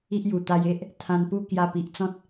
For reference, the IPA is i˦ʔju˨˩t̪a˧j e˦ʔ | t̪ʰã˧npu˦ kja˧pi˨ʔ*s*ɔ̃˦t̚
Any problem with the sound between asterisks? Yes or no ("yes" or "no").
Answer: yes